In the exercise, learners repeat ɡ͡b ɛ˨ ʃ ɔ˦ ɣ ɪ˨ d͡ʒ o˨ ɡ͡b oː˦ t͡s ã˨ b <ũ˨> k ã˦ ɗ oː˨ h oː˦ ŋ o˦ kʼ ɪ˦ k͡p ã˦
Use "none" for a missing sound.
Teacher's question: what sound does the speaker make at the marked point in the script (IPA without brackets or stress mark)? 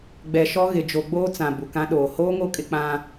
u˨